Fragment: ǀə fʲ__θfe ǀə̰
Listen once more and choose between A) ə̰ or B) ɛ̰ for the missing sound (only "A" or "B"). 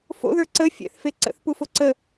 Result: B